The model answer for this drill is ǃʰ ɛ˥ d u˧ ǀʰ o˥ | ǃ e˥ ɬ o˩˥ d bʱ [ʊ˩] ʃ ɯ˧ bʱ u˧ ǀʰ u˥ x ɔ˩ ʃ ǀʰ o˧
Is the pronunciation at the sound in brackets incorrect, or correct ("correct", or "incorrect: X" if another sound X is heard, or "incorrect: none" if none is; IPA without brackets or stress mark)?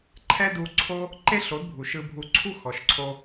incorrect: u˩